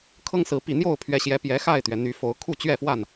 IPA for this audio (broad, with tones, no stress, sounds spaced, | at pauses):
kʰ ɤ˦ ŋ s ɹ̩˨˦ p i˨˩ n̪ j o˥˨ ʊ̯ pʰ ɥ ɛ˨˦ ɕ j ɛ˨˦ p j ɛ˨˦ x a˥˨ ɪ̯ t̪ ɥ ɛ˩ n̪ y˨˦ f o˨˦ ʊ̯ kʰ u˥˨ t͡ɕ ɥ ɛ˥˨ f w a˥˨ n